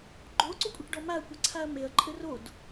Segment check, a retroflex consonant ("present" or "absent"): present